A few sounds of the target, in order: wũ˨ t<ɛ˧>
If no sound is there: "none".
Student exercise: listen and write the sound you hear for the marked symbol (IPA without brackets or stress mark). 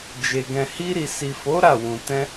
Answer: ɛ̃˧